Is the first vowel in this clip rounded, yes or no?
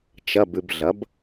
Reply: no